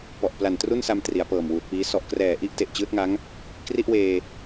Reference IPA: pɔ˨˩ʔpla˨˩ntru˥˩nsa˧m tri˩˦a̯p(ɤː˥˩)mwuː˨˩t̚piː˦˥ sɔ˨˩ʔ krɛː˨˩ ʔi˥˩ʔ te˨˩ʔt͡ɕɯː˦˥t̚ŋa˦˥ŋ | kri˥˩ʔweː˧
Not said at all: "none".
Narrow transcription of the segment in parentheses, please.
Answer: ɤː˨˩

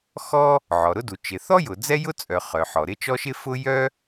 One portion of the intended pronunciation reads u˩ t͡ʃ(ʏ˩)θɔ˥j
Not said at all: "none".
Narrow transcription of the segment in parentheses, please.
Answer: ɪ˩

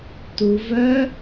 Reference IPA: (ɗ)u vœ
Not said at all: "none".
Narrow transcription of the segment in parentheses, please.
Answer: t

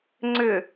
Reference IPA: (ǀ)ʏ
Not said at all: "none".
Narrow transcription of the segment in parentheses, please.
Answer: ŋ͡ǀ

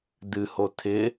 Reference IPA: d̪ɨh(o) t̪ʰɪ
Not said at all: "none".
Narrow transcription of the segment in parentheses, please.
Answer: o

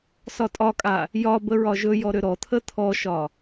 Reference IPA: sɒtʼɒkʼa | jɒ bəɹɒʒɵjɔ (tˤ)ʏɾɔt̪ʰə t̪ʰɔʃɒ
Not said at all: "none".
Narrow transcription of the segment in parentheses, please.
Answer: ɾ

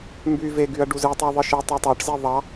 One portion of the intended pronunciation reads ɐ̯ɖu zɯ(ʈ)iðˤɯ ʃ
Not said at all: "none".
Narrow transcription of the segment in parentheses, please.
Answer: tˤ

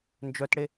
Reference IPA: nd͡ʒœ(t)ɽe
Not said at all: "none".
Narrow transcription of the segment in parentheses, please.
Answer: t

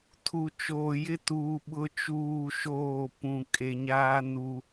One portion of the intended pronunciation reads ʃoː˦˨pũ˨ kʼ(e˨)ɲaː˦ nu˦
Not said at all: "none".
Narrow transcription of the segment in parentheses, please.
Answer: e˨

